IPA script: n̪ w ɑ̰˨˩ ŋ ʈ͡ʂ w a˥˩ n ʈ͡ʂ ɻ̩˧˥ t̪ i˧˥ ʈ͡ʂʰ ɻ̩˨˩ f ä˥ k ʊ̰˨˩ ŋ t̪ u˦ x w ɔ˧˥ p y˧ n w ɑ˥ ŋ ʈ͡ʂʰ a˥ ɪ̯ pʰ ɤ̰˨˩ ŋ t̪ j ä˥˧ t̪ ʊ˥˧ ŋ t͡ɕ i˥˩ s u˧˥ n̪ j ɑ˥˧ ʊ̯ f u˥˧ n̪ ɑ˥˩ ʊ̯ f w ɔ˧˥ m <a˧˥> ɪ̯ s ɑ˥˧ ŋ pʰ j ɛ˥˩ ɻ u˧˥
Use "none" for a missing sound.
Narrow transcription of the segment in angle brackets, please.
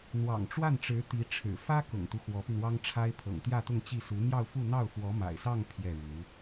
a̰˨˩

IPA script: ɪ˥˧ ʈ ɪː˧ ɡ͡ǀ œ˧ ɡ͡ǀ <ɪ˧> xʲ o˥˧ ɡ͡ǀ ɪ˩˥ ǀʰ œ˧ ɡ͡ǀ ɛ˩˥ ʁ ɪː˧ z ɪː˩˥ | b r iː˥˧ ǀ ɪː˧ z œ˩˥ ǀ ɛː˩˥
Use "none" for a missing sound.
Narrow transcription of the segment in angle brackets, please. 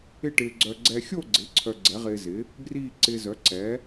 ɛ˧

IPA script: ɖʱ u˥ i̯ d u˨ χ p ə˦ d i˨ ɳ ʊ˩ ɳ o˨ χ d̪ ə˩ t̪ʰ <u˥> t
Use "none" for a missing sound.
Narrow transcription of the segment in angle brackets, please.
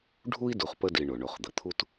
u˦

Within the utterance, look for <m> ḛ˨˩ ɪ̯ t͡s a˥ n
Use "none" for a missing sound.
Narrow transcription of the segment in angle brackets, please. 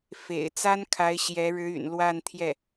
f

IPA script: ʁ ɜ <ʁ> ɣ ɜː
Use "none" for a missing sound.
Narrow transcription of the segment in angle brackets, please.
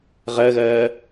none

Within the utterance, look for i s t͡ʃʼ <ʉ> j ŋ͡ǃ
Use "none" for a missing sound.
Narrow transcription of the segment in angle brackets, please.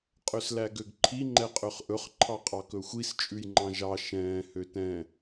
ʉ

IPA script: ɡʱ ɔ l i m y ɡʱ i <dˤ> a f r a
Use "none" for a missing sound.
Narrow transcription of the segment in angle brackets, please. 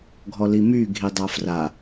dˤ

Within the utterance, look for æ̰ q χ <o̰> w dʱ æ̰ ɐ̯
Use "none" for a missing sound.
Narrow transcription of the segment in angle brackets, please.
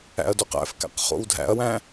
o̰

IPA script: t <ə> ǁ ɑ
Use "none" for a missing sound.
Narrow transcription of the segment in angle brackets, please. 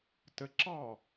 ə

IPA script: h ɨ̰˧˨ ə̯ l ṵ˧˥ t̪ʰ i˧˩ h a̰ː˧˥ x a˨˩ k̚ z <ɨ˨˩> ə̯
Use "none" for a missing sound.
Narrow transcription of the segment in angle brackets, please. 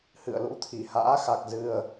ɨ˨˩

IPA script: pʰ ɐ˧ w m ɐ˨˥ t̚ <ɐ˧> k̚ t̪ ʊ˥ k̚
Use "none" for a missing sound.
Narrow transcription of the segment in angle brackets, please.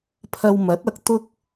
ɐ˧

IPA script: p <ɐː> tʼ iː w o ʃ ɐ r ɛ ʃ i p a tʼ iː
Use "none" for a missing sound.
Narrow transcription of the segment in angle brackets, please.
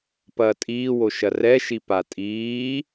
ɐː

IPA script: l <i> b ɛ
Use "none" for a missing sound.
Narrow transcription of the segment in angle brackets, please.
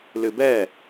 ɨ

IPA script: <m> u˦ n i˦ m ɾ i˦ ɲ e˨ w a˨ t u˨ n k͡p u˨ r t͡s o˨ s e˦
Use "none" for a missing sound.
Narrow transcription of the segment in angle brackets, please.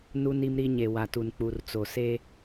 n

